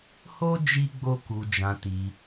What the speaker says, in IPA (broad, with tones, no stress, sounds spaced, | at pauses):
h o˦ d͡ʒ i˦ ɡ͡b o˦ k u˧ d͡ʒ ã˧ t i˧